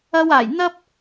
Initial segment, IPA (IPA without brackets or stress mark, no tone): ɐ